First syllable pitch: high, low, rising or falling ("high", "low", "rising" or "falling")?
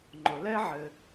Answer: low